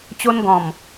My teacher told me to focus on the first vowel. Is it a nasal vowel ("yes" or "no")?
no